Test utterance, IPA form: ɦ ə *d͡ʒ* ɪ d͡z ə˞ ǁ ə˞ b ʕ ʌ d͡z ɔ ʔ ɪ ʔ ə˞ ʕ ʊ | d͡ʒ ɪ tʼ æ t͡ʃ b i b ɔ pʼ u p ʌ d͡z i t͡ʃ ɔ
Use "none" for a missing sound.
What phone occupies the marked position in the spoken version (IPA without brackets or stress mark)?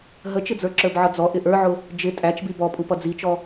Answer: t͡ʃ